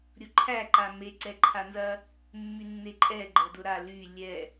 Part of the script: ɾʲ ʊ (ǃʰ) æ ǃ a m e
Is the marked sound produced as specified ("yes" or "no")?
yes